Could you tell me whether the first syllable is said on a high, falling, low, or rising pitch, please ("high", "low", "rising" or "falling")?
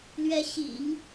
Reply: rising